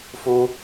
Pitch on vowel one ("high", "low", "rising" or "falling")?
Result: high